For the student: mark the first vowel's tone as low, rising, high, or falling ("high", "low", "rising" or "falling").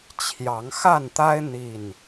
rising